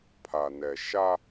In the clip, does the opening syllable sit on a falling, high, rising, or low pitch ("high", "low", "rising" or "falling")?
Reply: low